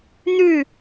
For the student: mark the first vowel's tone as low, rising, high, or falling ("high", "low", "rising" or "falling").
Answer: falling